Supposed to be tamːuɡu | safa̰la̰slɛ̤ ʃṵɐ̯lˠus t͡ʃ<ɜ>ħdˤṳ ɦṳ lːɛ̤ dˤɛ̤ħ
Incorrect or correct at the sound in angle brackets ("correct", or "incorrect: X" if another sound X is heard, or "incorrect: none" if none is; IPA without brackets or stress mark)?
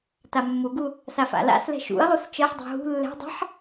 correct